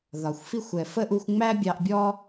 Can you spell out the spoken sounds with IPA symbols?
ðɒ˩xʷfi˦xʷ ɛ˨fə˥ʔu˦xʷ ŋ͡mæ˥bʲɑ˦ʔbʲɔ˥

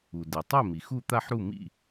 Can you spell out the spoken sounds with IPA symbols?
u˩de˩ tˤɛ˥˩ mi˩ xu˥˩t̪a˥˩ħɾu˥˩ mḭ˥˩

